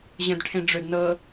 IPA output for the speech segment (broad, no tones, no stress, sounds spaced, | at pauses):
ʑ ə̃ d ʈʰ ẽ ɖ͡ʐ ɵ d n ɤː